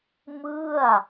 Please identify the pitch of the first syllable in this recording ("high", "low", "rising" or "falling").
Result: falling